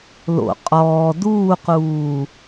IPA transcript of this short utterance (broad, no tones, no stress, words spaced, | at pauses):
lo̰ qʼɔː duːquː